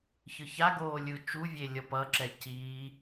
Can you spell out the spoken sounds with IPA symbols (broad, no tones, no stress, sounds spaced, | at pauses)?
ç ɯ ç a ɡ oː lʲ ɯ t͡ʃ u vʲ e lʲ ʌ p ʌ ǁ ɛ c iː